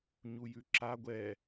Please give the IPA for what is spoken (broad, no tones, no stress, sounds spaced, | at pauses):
ɲ u j ʉ ǁ a ɡʷ ɛ